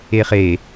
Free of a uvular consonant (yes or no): no